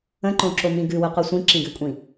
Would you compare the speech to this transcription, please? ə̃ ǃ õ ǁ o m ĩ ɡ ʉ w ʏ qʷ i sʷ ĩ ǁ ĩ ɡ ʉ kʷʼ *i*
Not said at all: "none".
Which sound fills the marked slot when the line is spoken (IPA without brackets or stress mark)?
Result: ĩ